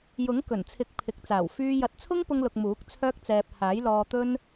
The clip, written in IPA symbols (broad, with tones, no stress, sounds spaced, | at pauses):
j ʊ˨˥ ŋ k ɵ˨˩ n t͡sʰ ɪ˨˥ k̚ pʰ ɪ˨ k̚ t͡s aː˨˩ w f yː˧ j ɐ˨˥ t̚ t͡sʰ ʊ˥ ŋ p ʊ˧ ŋ l ʊ˨ k̚ m uː˨˥ k̚ t͡sʰ œː˥ k̚ t͡s ɛː˧ p̚ h aː˨˥ j l ɔː˧ t̪ ɵ˥ n